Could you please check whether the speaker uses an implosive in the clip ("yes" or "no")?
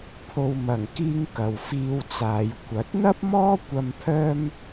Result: no